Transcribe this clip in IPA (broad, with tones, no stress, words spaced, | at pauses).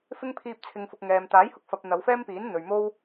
fɪ˥ŋ pʰiː˧p̚t͡sʰɪ˨ŋfʊ˨k̚ ŋɛː˨m t̪aː˨˥jhʊ˧k̚fɐ˨p̚ n̪ɐ˨˧wfɛː˥mpiː˨˥n n̪ɵ˨ɥ mo˥w